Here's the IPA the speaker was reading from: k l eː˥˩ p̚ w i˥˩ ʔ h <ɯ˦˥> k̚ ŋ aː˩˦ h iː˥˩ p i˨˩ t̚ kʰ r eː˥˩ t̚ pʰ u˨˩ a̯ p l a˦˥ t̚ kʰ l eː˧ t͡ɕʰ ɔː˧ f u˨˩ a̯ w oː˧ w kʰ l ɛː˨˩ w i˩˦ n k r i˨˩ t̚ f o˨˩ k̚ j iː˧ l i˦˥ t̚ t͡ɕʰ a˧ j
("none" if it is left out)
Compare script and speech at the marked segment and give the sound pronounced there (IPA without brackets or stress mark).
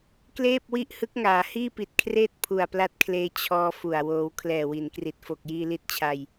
ɯ˦˥